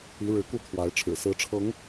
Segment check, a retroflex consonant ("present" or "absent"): present